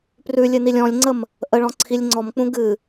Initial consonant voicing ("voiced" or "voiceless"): voiceless